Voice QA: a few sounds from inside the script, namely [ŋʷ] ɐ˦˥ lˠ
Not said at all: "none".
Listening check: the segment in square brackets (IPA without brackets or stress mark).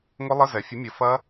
ŋʷ